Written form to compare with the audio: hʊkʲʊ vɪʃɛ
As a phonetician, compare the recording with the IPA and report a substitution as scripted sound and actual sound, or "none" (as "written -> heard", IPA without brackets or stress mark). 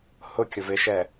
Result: none